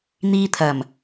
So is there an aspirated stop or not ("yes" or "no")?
yes